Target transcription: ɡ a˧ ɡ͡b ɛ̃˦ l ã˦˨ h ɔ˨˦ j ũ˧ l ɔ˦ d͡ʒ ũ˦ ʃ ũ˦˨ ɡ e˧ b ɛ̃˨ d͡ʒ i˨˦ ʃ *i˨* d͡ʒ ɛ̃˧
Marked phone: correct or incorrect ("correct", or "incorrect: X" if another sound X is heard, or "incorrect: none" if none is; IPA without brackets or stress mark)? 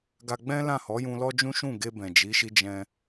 incorrect: i˦